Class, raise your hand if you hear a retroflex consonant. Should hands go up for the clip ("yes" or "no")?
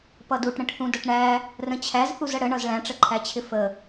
yes